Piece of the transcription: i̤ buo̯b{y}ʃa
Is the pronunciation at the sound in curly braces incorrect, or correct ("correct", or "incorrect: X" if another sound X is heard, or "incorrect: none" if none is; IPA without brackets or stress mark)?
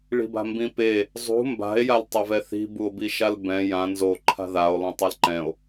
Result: incorrect: i